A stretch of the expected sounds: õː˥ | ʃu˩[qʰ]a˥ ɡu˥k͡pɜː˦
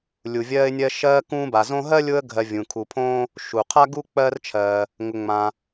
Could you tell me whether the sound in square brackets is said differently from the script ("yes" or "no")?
no